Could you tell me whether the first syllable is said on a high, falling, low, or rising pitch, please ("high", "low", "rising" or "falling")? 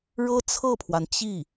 high